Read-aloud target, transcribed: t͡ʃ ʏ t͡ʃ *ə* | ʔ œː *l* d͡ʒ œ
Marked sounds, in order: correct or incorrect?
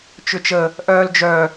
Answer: correct, correct

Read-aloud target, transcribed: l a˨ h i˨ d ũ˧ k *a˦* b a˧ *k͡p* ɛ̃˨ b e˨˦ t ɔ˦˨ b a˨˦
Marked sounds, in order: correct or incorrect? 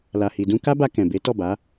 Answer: correct, incorrect

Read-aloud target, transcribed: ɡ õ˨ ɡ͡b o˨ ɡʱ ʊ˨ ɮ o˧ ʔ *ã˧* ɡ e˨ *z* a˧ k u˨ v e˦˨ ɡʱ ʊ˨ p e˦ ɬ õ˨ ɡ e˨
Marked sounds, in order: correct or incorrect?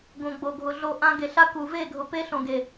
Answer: correct, incorrect

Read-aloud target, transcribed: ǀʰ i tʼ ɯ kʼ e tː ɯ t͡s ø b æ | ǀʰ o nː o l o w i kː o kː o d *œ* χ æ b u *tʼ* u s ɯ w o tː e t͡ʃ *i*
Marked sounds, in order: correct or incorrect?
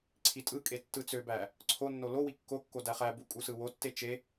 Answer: incorrect, incorrect, incorrect

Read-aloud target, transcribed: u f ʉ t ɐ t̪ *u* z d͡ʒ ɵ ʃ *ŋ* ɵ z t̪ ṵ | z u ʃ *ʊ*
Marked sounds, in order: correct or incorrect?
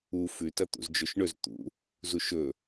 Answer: incorrect, incorrect, incorrect

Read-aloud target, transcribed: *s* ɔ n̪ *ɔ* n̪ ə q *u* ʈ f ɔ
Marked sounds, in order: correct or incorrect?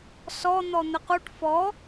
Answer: correct, correct, correct

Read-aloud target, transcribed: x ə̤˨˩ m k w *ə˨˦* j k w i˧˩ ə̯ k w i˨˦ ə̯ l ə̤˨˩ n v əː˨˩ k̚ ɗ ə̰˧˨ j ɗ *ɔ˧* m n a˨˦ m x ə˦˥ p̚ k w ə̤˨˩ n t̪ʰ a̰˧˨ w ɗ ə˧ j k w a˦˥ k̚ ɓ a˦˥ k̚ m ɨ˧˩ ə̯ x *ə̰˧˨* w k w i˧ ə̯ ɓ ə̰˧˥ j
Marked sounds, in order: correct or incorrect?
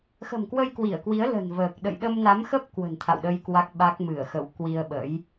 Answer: incorrect, incorrect, correct

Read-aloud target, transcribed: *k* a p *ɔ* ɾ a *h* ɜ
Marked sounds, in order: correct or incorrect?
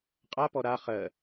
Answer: incorrect, correct, incorrect

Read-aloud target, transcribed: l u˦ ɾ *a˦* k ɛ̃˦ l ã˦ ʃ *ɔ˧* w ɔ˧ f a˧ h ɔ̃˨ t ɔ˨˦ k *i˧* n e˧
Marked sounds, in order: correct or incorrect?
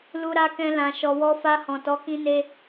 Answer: correct, incorrect, incorrect

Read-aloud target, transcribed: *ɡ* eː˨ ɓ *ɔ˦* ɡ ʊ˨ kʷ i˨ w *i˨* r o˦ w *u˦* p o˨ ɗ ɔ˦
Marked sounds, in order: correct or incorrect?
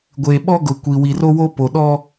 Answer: incorrect, correct, correct, incorrect

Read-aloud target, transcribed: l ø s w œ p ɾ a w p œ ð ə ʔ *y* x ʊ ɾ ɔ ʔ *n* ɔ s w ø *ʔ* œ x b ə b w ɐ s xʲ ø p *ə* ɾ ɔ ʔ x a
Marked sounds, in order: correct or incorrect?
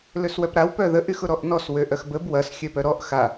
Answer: correct, correct, correct, incorrect

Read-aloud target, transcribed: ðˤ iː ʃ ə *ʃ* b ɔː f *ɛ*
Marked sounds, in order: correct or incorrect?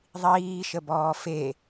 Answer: incorrect, incorrect

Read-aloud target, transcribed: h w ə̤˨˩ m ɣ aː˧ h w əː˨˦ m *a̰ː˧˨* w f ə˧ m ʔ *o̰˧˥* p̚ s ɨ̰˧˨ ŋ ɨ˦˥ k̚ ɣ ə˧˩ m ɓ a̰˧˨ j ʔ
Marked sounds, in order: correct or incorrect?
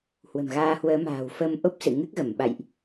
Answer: incorrect, incorrect

